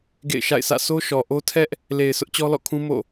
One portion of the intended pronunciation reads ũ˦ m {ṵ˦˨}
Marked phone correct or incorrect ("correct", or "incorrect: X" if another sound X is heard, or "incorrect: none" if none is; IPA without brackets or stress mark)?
incorrect: o̰˦˨